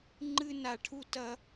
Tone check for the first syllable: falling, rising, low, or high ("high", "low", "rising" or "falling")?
high